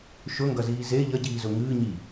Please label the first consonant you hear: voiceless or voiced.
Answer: voiceless